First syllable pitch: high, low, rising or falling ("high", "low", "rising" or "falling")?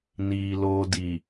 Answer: low